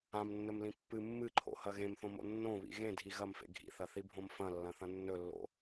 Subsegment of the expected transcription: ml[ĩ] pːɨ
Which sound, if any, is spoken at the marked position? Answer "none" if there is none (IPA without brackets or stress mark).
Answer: ĩ